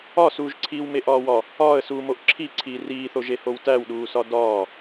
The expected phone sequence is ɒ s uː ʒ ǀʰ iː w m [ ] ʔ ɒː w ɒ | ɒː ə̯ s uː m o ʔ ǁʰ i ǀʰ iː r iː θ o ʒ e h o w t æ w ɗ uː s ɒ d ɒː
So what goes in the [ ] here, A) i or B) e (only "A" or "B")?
B